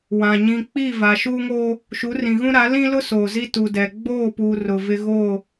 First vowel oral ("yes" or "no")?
no